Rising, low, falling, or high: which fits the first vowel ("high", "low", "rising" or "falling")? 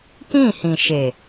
falling